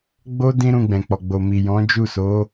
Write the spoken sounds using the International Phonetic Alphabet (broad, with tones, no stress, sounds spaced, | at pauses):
ɡ͡b o˦ d ĩ˦ ɾ ũ˧ ɡ͡b ɛ̃˨ k͡p ɔ˨ ɡ͡b o˨ m i˨ j ɔ̃˨˦ d͡ʒ u˦˨ s o˨˦